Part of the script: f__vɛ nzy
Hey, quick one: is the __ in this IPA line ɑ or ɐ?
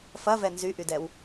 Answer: ɐ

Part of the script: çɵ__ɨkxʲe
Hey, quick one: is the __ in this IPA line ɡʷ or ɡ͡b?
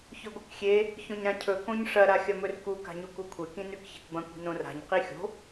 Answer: ɡʷ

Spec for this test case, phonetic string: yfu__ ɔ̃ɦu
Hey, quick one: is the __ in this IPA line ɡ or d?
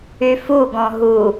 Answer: ɡ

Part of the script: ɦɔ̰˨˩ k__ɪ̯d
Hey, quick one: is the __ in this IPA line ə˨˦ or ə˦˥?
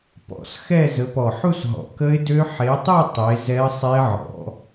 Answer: ə˦˥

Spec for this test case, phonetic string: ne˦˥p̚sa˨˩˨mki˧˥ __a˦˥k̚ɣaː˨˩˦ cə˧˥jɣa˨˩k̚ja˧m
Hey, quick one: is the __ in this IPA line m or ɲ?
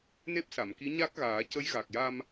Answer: ɲ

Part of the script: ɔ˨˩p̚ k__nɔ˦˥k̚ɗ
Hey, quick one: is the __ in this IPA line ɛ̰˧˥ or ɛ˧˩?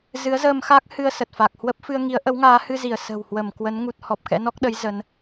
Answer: ɛ̰˧˥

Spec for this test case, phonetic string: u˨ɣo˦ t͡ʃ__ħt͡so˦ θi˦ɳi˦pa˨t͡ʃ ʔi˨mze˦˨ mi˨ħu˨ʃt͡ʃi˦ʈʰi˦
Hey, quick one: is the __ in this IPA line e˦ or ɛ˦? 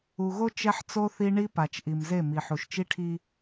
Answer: ɛ˦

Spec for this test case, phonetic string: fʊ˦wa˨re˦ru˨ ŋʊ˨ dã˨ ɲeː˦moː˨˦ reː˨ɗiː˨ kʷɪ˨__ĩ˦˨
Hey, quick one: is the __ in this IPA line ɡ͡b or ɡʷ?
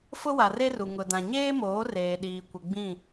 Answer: ɡ͡b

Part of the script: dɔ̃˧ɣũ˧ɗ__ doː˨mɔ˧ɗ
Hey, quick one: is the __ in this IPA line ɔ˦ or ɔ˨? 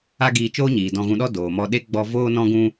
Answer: ɔ˦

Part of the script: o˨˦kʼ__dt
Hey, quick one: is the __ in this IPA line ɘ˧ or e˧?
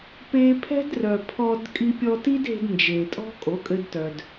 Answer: ɘ˧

